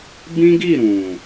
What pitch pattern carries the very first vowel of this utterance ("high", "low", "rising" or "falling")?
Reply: high